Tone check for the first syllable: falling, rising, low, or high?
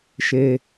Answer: high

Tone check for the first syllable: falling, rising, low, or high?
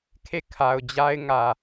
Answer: falling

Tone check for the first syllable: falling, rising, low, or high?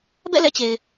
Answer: falling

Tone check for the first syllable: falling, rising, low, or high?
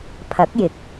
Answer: rising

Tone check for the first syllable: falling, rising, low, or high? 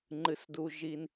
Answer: high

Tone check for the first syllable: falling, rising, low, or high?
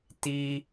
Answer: high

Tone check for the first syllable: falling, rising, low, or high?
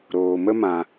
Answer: low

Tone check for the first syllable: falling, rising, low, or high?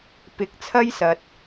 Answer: low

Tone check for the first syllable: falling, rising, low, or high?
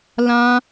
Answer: high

